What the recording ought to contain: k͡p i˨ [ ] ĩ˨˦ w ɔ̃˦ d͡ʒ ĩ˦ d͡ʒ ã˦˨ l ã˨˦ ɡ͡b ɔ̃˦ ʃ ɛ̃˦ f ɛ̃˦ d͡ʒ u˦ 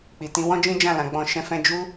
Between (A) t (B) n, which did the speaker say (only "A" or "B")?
A